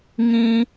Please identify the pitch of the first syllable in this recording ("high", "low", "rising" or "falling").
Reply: high